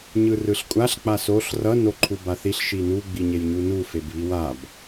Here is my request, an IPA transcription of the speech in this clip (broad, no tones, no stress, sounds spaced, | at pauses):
ɲ ɯ r ɯ ɬ kʷʼ a ɬ k͡p a s o ɬ r ʌ n o ǃʰ u b a θ i ɬ ʃ i n u ɡ͡b i ɲ e j ɲ u n u f e b β i w a b